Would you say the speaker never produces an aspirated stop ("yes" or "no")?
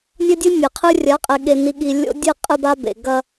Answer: no